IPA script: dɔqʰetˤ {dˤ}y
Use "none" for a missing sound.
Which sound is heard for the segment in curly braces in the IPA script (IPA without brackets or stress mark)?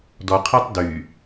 d